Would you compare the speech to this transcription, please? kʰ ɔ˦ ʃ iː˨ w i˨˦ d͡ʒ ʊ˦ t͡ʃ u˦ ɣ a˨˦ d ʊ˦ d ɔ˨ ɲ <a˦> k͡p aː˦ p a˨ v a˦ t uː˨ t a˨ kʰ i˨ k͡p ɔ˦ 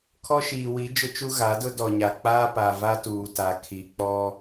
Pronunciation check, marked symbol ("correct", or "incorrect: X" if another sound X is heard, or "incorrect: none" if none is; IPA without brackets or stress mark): incorrect: a˨